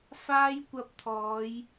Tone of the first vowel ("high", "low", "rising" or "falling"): high